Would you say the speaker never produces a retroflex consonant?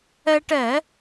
no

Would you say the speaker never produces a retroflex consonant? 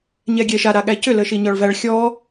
no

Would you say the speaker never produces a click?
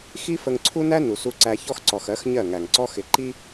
no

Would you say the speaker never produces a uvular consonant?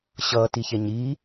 yes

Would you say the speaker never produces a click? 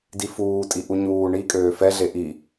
yes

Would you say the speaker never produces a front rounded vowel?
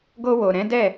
yes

